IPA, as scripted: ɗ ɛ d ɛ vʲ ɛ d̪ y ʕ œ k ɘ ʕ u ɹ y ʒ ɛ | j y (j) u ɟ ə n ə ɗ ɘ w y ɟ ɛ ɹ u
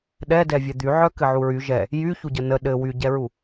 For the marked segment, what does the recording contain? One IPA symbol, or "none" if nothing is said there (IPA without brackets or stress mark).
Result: ç